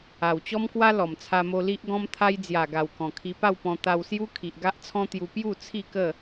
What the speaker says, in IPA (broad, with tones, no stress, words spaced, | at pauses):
a˨˩wt͡ɕɔ˦mkwa˦ lɔ˨˩mt͡sʰa˧mo˧ li˦ʔɡɔ̃˦mt̪ʰa˦j d͡zja˨˩ɡa˨˩w kɔ̃˨˩kʰi˧pa˥˧wpɔ̃˧ t̪a˧wsju˦ kʰi˨ʔ ɡa˦ʔt͡sʰɔ̃˦t̪ju˧ pju˥˧ t͡sʰi˥˧kə˥˧